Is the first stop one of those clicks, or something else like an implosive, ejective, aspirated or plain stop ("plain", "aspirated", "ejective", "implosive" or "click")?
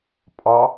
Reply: ejective